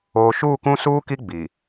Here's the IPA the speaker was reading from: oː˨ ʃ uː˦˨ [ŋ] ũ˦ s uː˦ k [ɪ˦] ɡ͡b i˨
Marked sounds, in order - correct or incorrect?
incorrect: k, incorrect: i˦

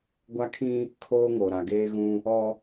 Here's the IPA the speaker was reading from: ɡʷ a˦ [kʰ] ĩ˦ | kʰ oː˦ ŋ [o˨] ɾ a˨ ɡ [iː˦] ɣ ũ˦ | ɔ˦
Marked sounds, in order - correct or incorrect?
correct, correct, incorrect: eː˦

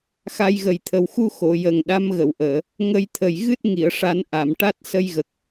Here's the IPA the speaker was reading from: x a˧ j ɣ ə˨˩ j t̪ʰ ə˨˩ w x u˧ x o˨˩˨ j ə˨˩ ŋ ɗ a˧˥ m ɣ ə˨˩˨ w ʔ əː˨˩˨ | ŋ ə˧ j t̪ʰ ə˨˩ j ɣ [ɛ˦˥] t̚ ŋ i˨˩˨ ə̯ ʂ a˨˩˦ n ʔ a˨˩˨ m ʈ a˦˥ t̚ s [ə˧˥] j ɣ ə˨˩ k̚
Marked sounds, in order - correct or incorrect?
incorrect: ɨ˦˥, incorrect: ə˧

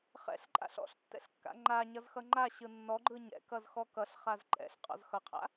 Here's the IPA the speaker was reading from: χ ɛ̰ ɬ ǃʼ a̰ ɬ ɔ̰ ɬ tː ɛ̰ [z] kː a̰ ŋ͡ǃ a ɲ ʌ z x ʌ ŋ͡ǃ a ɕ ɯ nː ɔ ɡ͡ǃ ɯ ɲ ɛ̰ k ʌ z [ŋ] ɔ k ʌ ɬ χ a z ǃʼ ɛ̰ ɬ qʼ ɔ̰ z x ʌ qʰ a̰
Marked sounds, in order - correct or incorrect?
incorrect: ɬ, incorrect: x

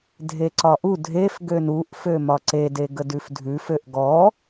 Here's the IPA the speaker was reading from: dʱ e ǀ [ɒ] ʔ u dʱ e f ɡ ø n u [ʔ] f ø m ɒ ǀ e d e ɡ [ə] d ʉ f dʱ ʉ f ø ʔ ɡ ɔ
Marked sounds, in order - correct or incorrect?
correct, correct, correct

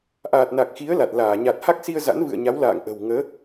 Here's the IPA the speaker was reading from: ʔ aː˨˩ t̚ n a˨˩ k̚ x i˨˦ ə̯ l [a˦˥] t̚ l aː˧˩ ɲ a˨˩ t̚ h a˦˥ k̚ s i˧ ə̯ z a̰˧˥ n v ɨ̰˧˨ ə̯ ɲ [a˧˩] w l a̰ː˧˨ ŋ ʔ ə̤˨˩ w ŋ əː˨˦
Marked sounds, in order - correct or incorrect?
incorrect: a˨˩, incorrect: a˨˦

